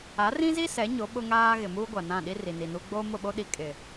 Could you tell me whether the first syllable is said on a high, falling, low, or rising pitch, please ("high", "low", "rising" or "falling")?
rising